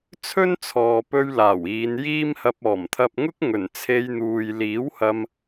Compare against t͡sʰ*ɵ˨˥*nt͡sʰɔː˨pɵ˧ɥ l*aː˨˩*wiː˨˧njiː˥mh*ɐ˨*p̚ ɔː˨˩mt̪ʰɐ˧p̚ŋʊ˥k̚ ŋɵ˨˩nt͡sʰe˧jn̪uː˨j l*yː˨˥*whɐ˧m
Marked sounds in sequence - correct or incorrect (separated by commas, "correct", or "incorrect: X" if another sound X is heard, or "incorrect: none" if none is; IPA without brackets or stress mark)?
incorrect: ɵ˥, correct, incorrect: ɐ˧, incorrect: iː˨˥